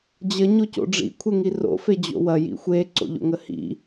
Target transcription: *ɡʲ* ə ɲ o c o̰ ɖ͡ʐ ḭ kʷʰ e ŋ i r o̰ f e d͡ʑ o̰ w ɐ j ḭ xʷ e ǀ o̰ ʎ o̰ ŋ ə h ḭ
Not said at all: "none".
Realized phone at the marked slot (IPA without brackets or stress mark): d͡ʑ